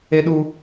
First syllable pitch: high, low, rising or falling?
high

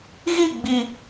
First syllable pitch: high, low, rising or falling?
falling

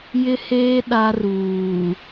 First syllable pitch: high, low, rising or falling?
high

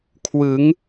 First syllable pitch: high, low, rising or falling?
rising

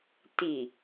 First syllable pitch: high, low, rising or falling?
low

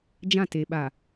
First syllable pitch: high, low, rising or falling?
falling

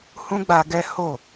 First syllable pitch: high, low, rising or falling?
high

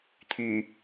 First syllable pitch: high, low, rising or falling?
low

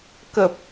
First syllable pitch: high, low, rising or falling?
low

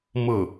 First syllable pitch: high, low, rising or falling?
falling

